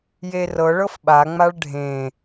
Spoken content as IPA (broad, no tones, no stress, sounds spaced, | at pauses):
j e r ɤ ɭ ɤ f ɓ a ŋ͡m a ɭ ɖʱ ẽ